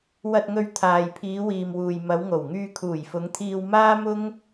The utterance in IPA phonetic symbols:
wɐ˨t̚ŋɵ˨ɥ t̪ʰaː˨jpʰiː˨˧wiː˨mwuː˨j mɐ˨˧wŋo˨˩w ŋyː˧kʰuː˨˩jfʊ˨˧ŋt̪ʰiː˧w maː˥mʊ˥ŋ

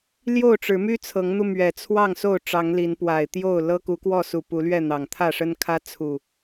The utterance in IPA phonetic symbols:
ljo˥˨ʊ̯ʈ͡ʂɻ̩˨˦ my˦t͡sʰɤ˨˦ŋn̪u˧ mɥɛ˨˩t͡sʰwɑ˥˨ŋ so˥˨ʊ̯ʈ͡ʂɑ˨˦ŋli˨˦n pwa˨˩ɪ̯t̪jo˥˨ʊ̯ lɤ˦ ku˨˦kwɔ˥˨su˨˩ pu˨˦lɥɛ˥˨n̪ɑ˨˩ŋ t̪ʰä˥˨ʂə˦nkʰä˦ t͡sʰu˨˩

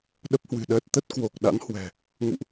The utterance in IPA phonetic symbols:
ɗə˦˥p̚hwɨ̤˨˩ɗəː˦˥t̚ t̪ə˦˥t̚ kwo˨˩k̚ ɗa̰˧˥nhwɛ̤˨˩ | ŋṵ˧˨ʔ

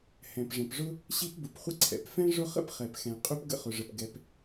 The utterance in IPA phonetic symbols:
hɛ̃˩pʐə̃˩pʐʊ˥ | ɕi˥pbʊ˩pχʷə˥ ǀʰɛ̰˩pfɛ̃˥ ʐʊ˥ χə̰˥pχɛ˩pxɛ̃˩ qʼy˥p ɡə̰˥χʊ˩ʐə˩p ɡɛ˩p

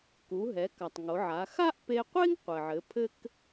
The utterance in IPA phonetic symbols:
ku˩˧ɦɛ˩˧ka˩tˤ ŋo˩˧ʕa˩˧ xa˥ʔpe˧qʷe˥ŋ qʷɘ˩ʕɘ˩˧ pʰɘ˥k

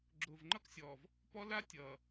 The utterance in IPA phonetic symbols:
ɡ͡ǁʊː˨vŋ͡ǃʌ˦ksʲɔː˨v | pɔ˦la˦ tʲʌː˨

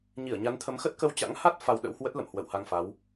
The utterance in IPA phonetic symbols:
ɲi˧˩ə̯ɲa˨˦nt̪ʰə˨˦mxə˦˥t̚ kə˧wt͡ɕa̰˧˥ŋha˦˥t̚ fa˧wɗə̰˧˥whwə˦˥t̚ lə̰˧˨mhwə̰˧˨wha˧ŋfa˨˦w

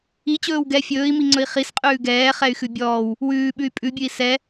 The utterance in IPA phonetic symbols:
it͡ɕɵːw ɡɛ fʲɵːi̯miŋ͡ǀɵi̯ χisqʼʉː ɡɛːχɛy̯xʉ bʲɔːw | wʉːɓʉy̯ pʼʉbʲʉi̯ sɛ

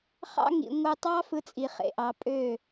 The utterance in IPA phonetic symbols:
χɑ̰˦ŋḭ˨ ŋʷɯ˨tˤɑ˦ fɯ˦t͡sʼi˨ χḛ˨ʔɑ˨˦ pʼø˦˨

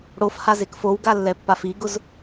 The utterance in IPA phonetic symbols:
ɽofhazek fowɡalːɛpːaf iɡʊz

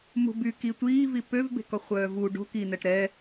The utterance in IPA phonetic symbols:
mṳby ki tʷiːvi pøvbe̤kɔχʷœː vu ɖo̤ ki nɛʈɾɛ

